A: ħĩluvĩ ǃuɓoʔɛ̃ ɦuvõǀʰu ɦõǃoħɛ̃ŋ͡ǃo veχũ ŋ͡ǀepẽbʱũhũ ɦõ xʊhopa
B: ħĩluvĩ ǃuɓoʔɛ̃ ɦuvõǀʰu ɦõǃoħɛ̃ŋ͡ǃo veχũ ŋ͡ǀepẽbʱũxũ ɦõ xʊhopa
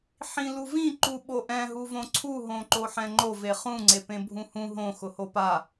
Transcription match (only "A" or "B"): A